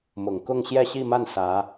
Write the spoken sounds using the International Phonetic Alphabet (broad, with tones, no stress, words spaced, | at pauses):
mʊ˨˩ŋ kʊ˥˧ŋɕjɛ˥˧ɕi˥˧ma˥˩n sä˧˥